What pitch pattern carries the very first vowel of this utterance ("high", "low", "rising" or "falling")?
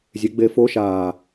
rising